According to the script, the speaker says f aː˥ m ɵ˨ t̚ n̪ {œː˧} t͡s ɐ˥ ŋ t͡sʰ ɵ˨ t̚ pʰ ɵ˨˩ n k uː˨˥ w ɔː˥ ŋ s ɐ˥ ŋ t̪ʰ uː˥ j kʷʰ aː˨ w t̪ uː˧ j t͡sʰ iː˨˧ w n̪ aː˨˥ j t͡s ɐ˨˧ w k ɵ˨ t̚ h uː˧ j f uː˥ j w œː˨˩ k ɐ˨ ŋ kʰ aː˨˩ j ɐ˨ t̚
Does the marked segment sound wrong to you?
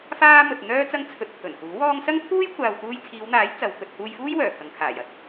yes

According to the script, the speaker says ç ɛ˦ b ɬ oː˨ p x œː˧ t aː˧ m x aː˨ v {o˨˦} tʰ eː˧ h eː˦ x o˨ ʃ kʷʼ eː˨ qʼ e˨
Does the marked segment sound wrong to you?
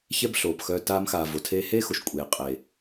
yes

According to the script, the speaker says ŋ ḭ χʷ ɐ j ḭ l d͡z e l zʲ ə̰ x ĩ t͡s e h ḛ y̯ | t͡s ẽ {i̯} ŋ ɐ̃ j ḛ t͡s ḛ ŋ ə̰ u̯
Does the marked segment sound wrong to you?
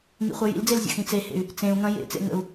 yes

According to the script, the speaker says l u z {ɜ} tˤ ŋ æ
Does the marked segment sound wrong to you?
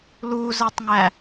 no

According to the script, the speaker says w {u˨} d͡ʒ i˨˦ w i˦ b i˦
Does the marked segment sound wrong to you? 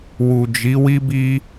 no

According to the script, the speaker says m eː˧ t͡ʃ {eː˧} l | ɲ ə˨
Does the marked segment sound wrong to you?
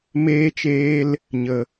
no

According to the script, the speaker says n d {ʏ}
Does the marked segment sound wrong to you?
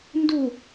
yes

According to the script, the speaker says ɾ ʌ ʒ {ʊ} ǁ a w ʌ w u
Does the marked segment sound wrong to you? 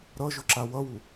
no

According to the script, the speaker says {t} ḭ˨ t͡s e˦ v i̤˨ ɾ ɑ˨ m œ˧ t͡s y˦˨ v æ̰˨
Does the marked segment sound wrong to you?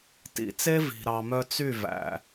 no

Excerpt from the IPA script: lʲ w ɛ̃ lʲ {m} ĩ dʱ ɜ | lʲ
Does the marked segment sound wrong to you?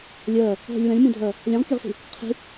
no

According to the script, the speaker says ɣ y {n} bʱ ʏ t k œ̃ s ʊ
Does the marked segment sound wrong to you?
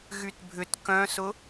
yes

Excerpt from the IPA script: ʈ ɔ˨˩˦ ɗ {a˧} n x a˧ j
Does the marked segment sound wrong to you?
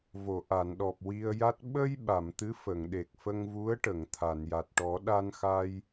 no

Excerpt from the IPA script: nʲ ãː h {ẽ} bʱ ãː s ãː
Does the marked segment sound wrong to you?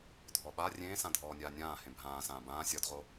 no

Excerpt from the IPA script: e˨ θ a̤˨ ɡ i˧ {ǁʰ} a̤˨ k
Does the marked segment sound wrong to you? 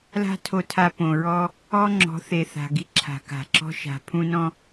no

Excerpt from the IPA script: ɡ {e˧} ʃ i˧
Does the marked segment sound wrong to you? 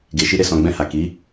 yes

